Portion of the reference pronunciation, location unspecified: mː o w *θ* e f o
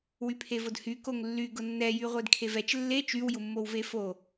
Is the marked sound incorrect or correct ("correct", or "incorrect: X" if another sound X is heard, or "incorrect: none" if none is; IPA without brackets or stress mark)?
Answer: incorrect: v